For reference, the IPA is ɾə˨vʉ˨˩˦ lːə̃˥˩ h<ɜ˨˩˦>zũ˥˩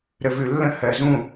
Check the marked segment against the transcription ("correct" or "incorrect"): correct